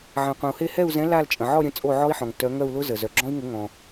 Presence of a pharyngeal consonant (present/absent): present